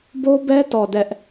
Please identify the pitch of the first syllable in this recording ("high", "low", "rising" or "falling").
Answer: high